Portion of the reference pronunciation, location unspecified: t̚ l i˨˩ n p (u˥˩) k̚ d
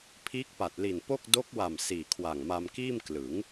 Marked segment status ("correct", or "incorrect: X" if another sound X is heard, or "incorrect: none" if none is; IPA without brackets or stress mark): incorrect: o˥˩